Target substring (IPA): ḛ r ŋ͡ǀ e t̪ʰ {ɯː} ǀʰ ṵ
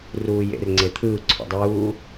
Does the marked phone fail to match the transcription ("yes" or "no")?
no